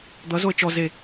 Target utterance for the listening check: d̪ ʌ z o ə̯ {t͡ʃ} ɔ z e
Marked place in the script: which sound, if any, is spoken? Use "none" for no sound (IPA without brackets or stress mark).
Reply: t͡ʃ